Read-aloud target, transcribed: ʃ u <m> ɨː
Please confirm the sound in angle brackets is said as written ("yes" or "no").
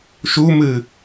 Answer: yes